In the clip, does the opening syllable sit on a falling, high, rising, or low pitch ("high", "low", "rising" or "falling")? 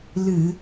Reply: low